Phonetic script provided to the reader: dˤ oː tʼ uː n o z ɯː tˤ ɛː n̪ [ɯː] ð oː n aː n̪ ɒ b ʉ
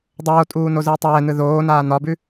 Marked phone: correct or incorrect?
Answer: incorrect